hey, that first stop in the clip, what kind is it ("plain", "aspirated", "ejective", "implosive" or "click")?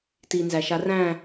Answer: plain